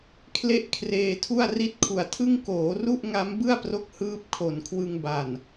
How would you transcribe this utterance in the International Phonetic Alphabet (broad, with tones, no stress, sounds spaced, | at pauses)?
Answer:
kʰ l e˦˥ ʔ kʰ r eː˧ tʰ u˥˩ a̯ r i˥˩ t̚ kʰ u˨˩ a̯ tʰ ɯ˥˩ ŋ k oː˩˦ r u˥˩ ʔ ŋ a˦˥ m b ɯ˥˩ a̯ p r o˦˥ k̚ h ɯː˦˥ p̚ kʰ o˨˩ n kʰ w ɯ˧ ŋ b a˨˩ n